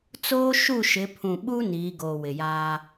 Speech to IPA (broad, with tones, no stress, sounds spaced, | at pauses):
t͡s oː˦ ʃ u˦˨ ʃ ɪ˨˦ pʰ ũ˨ ɓ u˦ n iː˨˦ ɡ oː˨ w ɪ˨ j aː˦